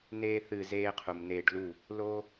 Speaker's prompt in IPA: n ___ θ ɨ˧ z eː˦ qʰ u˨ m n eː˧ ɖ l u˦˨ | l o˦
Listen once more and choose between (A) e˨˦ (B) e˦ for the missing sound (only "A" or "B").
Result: B